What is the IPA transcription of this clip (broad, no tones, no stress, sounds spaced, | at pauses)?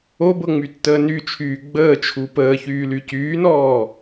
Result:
o b ɤ ŋ͡m y tː əː n y t͡ʃʰ yː ɡ͡b əː t͡ʃʰ u p əː ç yː l y c yː n ɔː